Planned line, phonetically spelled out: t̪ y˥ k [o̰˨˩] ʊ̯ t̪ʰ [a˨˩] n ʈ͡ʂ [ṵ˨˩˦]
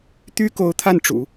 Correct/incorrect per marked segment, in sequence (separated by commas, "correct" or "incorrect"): incorrect, incorrect, correct